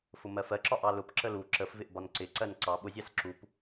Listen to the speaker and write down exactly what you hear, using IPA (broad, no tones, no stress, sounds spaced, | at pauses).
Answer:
f ʊ m ɜ f ɜ ǁ ɒ ʔ ɑ l ʊ p ǁ ə l u ǁ ə f v ɪ ʔ b ɒ n ǀ ɪ ǀ ɜ n ǀ ɑ ɓ ʊ zʲ ɑ s ǁ u p